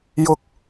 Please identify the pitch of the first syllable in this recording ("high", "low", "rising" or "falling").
high